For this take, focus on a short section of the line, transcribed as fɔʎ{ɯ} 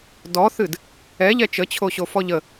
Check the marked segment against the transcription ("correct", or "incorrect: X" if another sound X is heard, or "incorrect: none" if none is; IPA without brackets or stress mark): incorrect: ə